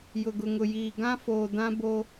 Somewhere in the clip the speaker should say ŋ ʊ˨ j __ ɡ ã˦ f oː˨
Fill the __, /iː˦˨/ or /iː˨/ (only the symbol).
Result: iː˨